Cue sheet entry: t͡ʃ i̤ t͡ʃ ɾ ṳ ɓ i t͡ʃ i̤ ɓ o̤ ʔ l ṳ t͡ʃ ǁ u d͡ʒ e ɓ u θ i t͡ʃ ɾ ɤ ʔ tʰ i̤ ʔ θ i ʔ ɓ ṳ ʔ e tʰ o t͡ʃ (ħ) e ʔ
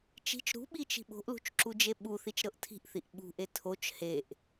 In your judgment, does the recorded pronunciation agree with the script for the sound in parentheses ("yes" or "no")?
no